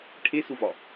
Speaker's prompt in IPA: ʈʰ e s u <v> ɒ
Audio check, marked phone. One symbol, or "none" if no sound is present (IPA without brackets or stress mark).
v